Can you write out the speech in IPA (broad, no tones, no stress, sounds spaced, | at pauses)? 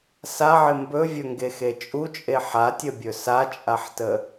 s a ʕ ɪ m b ɵ vʲ ɵ ŋ ɡ e x e t͡ʃʼ u t͡ʃʼ e ħ a tʲ ə bʲ ɵ s a t͡ʃʼ a ħ t ə